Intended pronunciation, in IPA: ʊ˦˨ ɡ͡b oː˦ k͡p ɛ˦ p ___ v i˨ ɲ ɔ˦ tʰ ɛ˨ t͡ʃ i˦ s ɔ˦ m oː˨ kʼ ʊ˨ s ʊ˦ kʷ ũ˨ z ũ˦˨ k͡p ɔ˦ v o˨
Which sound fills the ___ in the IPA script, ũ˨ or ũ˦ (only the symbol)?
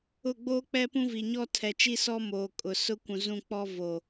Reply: ũ˦